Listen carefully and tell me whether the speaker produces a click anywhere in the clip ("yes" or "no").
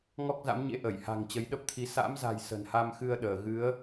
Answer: no